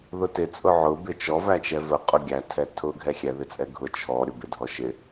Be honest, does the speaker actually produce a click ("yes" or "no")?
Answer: no